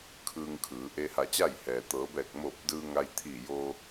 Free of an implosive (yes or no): yes